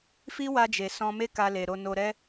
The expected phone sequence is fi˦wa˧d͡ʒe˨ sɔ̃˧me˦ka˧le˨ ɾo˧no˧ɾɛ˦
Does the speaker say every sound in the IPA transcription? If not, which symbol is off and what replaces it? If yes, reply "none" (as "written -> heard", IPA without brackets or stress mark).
none